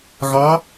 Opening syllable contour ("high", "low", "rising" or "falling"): rising